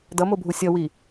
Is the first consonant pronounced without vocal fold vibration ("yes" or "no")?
no